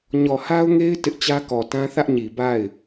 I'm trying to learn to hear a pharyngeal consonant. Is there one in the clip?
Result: no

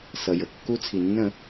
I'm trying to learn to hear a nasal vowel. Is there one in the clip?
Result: yes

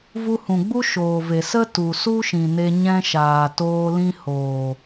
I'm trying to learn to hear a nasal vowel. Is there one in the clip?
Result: yes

